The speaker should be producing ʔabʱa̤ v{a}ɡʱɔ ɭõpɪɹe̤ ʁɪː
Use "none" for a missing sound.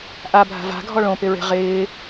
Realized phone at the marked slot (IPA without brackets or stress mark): a̤